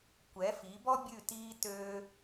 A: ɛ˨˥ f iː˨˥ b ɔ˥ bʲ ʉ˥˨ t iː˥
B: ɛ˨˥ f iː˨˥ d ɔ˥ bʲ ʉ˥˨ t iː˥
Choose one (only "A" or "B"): A